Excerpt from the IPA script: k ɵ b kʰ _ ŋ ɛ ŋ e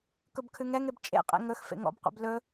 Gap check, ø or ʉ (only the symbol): ʉ